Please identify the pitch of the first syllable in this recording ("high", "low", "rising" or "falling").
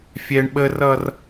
high